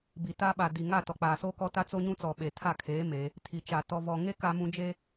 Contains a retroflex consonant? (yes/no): no